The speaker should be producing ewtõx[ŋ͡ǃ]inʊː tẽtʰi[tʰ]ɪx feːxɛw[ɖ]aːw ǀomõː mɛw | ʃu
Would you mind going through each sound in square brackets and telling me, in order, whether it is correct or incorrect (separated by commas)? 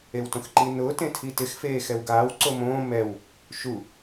incorrect, incorrect, incorrect